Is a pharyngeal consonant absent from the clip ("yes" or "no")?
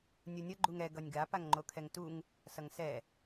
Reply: yes